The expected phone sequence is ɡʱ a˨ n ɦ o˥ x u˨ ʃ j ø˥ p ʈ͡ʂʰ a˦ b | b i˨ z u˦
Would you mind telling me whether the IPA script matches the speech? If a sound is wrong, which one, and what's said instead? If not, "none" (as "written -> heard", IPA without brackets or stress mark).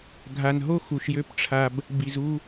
none